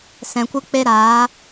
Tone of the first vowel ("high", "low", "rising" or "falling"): low